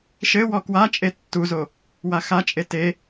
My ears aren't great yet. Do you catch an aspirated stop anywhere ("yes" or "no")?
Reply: no